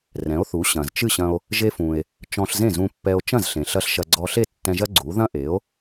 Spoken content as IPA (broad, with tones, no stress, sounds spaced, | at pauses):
r ɛ̃˩˥ o̯ θ u˩˥ ɕ ɐ̃˩ z t͡ʃ ɨ˥˩ ɕ ɐ̃˧ o̯ | ʒ e˧ f ũ˩ e̯ | t͡ʃ ɔ̃˧ ɬ z ẽ˥˩ z ũ˧ pː ɛ˧ o̯ t͡ʃ ɐ̃˥˩ z ɬ ẽ˩ ɬ ɐ˥ ɬ ʃ ɐ˧ ɡ͡ǀ ɔ˧ ɬ e˥˩ tː ɛ̃˧ ʒ ɐ˥ ɡ͡ǀ u˩˥ ð ɐ̃˥ ʔ e˩˥ o̯